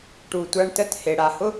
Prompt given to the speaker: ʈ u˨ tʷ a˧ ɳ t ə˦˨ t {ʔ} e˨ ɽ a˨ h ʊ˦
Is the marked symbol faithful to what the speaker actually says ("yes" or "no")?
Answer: no